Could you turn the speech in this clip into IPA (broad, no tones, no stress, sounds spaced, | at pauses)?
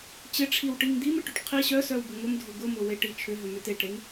t͡ɕ ɪ ʈ͡ʂʰ i w ʈ i ŋ d̪ i m ɪ ʈ ʏ ʈ qʰ i ɕ œ s œ w b ʊ ŋ ʊ m dʱ ʊ ɡ ʊ m ʊ w e ʈ i t͡ʃʰ ʏ ɦ ʏ m ʏ t e ʈ ɾ e ŋ